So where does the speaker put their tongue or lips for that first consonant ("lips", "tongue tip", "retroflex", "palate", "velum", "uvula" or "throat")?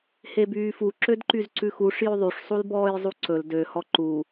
throat